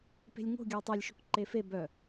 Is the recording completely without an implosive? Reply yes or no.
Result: yes